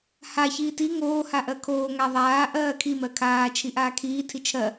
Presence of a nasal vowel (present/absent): absent